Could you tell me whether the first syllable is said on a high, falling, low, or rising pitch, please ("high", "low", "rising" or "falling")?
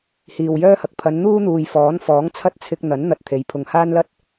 low